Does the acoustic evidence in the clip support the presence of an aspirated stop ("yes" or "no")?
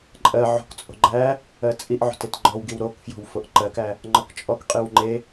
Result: no